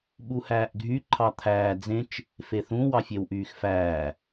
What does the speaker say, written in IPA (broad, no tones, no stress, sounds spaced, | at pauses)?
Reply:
ɓ u h æː ʔ ɡʱ y ǃʰ ɑ t̪ʰ æː d͡z ẽ t͡ʃ | f e θ ũ w ɑ fʲ e w ʔ yː x f æː